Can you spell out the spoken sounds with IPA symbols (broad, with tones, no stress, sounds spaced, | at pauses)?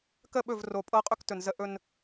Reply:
k ə˦˨ ɓ ɵ˦˨ v r o˨ pʼ ɤ˦ qʼ ɵ˦ k t ɵ˨ n z ə˦ ʔ ɵ˦ n